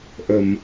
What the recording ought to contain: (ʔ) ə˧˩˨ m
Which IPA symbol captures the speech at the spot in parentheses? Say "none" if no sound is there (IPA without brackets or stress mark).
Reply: ʔ